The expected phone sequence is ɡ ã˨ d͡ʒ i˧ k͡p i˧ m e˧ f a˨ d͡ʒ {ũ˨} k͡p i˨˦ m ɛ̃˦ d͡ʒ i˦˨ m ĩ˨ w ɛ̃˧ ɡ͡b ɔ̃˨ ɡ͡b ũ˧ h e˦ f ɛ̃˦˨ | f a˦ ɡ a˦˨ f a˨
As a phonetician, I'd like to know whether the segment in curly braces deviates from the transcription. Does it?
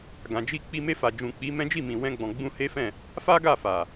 no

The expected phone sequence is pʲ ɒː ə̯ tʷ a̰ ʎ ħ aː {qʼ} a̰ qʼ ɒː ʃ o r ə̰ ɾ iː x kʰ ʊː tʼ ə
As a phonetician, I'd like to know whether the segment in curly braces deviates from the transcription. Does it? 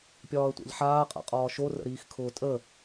no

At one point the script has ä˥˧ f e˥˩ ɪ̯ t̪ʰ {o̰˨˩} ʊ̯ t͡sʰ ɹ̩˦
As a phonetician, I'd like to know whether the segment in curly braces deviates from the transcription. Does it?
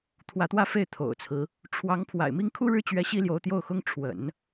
no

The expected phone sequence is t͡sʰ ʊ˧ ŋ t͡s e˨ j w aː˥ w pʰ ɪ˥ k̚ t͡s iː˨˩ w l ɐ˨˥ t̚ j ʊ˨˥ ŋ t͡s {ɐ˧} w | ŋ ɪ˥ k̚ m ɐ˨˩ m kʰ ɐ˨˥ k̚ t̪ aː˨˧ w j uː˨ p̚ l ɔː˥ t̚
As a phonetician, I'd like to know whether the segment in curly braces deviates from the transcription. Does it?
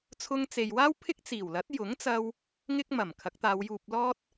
no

